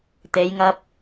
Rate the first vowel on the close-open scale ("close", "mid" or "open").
mid